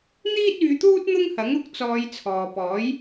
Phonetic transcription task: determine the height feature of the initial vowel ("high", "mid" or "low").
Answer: high